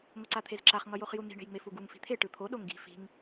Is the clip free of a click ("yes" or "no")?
no